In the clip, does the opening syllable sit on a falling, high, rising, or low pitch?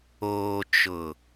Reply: low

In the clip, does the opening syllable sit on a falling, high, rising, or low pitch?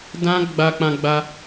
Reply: high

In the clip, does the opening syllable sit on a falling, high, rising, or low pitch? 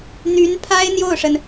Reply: rising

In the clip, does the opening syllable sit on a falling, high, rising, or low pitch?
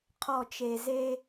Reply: low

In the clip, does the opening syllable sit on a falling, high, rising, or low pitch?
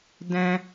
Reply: high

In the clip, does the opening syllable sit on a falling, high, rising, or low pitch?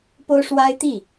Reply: high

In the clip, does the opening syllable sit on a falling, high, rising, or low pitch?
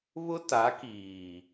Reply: high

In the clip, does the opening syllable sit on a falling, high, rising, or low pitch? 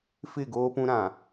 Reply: falling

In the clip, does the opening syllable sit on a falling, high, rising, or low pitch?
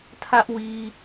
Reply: high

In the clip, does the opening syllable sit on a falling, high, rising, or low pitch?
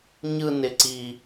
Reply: high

